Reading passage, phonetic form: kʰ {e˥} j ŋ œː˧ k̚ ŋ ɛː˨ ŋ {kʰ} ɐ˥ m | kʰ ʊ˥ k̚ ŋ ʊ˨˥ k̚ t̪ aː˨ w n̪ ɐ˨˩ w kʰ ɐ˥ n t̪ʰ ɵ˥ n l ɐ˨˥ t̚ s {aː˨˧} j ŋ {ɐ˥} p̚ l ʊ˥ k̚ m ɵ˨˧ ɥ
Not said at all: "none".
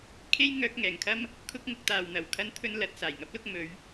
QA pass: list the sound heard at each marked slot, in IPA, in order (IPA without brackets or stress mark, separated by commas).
e˥, kʰ, aː˨˩, ɐ˥